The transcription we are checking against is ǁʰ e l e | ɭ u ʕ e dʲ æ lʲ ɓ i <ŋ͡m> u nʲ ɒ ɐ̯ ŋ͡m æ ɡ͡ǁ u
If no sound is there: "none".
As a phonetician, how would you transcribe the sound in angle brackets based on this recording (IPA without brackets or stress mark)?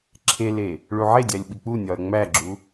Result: k͡p